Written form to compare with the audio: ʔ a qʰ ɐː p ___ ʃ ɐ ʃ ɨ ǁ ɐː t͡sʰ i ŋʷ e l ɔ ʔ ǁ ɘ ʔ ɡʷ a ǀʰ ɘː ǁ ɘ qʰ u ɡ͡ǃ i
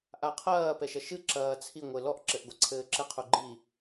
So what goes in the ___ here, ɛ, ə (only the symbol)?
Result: ɛ